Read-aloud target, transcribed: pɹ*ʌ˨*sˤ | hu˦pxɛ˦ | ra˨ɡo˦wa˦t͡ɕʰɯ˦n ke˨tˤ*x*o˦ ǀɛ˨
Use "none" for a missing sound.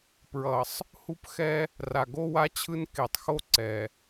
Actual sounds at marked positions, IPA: ʌ˨, x

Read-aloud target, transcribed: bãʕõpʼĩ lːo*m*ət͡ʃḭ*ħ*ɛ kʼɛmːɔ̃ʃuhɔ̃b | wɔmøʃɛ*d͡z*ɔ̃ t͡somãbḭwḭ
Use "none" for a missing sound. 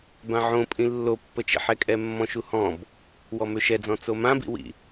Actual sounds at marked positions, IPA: pː, ħ, d͡z

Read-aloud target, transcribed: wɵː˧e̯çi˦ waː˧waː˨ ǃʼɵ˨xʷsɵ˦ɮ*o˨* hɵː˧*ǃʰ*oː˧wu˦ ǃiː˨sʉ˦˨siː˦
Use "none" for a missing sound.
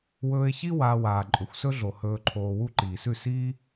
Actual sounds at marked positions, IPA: o˨, ǃʰ

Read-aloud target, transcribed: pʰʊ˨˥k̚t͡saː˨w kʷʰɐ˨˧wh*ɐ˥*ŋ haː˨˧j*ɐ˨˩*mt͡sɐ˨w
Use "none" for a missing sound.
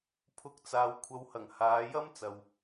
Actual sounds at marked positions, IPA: ɐ˨˩, ɐ˥

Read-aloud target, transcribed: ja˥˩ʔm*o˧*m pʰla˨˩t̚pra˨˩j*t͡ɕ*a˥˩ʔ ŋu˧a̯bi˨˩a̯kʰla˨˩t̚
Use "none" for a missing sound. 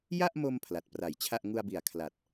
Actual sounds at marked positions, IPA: o˧, t͡ɕʰ

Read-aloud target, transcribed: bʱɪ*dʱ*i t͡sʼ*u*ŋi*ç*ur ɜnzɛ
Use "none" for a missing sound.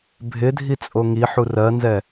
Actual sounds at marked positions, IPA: dʱ, o, ħ

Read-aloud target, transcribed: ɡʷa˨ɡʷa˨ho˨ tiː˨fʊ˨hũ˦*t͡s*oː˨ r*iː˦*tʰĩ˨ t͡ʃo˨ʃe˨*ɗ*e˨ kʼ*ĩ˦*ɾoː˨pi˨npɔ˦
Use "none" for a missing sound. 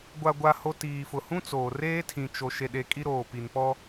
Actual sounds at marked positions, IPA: t͡s, eː˦, ɗ, i˦

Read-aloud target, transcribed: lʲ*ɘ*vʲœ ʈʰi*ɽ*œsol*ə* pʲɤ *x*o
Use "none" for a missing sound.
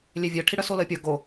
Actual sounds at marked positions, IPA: e, ɽ, ə, ɡ

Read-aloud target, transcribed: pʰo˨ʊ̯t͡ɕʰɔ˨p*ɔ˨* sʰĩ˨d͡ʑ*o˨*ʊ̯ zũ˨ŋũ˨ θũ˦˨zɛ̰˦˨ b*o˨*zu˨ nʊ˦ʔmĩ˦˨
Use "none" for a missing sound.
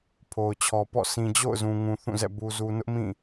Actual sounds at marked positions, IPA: ɔ̰˦˨, o̰˦˨, u˨

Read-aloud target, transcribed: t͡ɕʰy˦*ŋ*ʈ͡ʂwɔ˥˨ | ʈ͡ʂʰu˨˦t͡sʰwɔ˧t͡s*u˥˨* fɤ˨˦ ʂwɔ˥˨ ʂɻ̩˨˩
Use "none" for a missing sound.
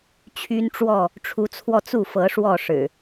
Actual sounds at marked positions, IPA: n, u˥˨

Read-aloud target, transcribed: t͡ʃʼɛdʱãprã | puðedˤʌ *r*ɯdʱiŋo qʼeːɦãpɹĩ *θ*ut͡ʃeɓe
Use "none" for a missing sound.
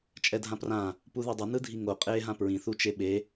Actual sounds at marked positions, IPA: n, θ

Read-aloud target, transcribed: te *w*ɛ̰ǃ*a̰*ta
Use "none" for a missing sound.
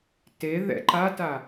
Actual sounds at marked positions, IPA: ð, a

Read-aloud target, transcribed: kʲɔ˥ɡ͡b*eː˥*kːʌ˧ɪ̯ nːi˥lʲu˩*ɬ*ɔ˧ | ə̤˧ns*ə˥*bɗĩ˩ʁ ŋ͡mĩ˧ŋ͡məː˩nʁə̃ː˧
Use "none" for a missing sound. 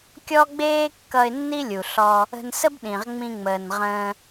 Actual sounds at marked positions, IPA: eː˥, ɬ, ə˥

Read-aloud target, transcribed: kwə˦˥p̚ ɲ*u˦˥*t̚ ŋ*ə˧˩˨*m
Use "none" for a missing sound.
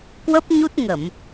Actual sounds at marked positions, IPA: u˦˥, ə˧˩˨

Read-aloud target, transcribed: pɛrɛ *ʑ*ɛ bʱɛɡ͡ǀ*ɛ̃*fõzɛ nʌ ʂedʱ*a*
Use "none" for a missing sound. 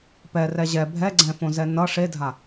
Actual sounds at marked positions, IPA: ʑ, ɛ̃, a

